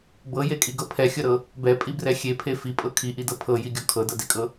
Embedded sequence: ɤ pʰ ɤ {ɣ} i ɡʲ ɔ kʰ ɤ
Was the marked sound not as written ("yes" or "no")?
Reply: yes